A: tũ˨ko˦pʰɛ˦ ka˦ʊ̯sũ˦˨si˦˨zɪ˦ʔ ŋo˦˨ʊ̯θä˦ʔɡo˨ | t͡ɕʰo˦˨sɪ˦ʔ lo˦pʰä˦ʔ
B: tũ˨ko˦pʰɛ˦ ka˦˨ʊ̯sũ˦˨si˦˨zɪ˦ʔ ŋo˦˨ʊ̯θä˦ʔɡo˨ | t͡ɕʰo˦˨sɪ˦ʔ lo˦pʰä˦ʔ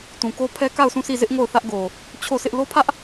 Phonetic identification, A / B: B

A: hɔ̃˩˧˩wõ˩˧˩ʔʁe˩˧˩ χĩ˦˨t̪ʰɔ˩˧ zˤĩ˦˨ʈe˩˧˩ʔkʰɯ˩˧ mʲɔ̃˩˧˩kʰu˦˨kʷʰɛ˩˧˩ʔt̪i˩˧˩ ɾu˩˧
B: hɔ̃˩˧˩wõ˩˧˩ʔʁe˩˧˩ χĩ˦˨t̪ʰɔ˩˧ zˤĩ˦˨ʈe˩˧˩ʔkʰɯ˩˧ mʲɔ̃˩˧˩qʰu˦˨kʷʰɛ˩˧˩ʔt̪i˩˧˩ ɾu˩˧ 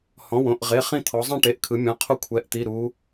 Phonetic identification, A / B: B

